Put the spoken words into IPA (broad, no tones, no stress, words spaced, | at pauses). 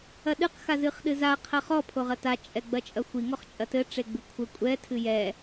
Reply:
ɐɗɨq xazɨχɗɨza qʰɐχɔ pʰoʁɐta t͡ʃʼɛɡ͡bɐt͡ʃʼɐxʷi ŋɔχt͡ʃʼɐtɘ ʈ͡ʂeɡ͡bɨkʷʰɘ kʷʼɛ tʰɨjɛ